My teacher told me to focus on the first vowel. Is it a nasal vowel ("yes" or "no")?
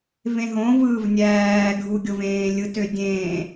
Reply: yes